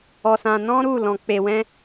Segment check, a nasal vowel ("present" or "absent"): present